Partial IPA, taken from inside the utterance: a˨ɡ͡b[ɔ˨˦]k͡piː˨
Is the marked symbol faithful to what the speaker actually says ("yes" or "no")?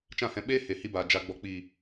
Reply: no